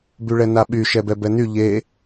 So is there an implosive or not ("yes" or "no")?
yes